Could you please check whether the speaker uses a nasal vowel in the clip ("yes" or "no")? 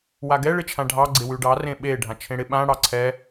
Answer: yes